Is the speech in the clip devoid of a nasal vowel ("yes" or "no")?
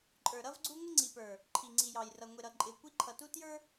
yes